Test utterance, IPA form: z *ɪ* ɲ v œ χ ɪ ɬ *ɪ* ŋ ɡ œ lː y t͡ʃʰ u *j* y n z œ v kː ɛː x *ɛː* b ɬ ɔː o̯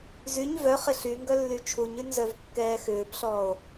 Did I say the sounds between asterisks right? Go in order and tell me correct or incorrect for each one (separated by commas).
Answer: incorrect, incorrect, incorrect, incorrect